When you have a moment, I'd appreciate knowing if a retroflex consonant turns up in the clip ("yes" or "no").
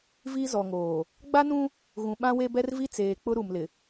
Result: no